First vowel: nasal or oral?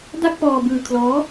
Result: oral